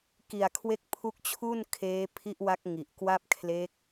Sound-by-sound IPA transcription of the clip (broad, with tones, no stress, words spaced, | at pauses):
ki˨˩a̯kʰwe˦˥k̚pʰu˦˥k̚t͡ɕʰu˥˩n kʰeː˦˥pʰi˦˥ʔwa˦˥k̚ ŋi˨˩ʔkwa˥˩p̚ kʰle˦˥k̚